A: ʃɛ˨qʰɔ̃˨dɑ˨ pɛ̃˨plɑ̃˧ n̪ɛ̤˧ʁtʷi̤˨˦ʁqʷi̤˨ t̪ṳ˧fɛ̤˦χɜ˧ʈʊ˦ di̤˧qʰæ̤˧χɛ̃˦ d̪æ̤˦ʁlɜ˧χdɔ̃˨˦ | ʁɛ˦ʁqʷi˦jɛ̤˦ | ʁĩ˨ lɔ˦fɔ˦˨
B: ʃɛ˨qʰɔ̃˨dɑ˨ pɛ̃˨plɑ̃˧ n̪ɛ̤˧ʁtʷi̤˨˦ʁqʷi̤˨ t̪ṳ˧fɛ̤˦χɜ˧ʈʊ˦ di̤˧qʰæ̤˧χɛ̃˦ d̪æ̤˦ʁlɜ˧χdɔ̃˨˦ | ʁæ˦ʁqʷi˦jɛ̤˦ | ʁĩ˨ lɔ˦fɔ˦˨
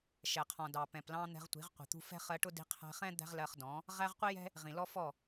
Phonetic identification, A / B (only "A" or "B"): B